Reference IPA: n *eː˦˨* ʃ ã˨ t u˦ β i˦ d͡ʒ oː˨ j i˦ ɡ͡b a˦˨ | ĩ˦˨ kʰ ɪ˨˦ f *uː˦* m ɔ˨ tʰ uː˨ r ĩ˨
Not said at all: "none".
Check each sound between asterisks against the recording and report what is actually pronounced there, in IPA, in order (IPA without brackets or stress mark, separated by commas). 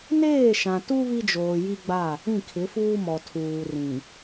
eː˦˨, uː˦